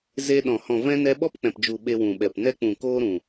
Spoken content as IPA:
ze˧ɗɔ̃˨ hɔ̃˨vɛ̃˧ nɛ˧ɓɔ˦p k͡pɛ̃˨pd͡ʒu˨ ɓe˧wũ˨ɓɛ˨p nɛ˧k͡pũ˨koː˧ɾũ˨

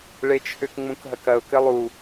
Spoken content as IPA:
ɭet͡ʃʰʏk ŋ͡mũkɦɐkɐʊ̯ kɘlˠu

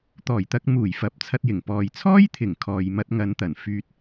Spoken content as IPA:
t̪ɔː˨˩jt̪ɐ˧k̚muː˨˩jfɐ˨p̚ t͡sʰɐ˧t̚jɪ˨˩ŋ pɔː˨jt͡sʰɔː˥jt̪ʰɪ˨˩ŋ kʰɔː˨j mɐ˧t̚ ŋɐ˨˧nt̪ɐ˨˩n fyː˧t̚

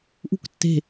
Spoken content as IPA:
ʔṳktːe̤

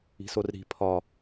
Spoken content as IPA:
i̤sorɾi̤ pʰɒ

